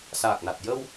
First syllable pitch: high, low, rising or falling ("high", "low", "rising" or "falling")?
low